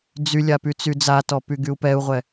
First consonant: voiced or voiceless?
voiced